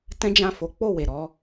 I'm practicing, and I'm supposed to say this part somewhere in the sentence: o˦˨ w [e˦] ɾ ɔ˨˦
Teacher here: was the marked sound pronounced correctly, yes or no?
no